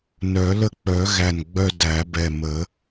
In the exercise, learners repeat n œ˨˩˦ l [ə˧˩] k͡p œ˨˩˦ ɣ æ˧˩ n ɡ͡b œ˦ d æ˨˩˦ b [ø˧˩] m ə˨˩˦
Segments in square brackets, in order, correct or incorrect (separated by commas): incorrect, incorrect